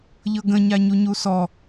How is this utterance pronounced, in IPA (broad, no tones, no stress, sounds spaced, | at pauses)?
ʎ ɤ ɡ ə̃ ɲ a ɲ u ɲ u s ɔ